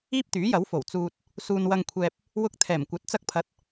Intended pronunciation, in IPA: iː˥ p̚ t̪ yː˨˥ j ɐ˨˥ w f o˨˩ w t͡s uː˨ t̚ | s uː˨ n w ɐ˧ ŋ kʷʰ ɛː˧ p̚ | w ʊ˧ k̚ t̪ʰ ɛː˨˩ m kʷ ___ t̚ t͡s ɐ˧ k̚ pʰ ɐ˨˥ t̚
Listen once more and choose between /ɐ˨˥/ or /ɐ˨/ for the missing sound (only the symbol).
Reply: ɐ˨˥